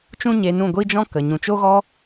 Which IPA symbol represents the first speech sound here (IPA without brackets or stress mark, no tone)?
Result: t͡ʃ